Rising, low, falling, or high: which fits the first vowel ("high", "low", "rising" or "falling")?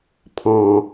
low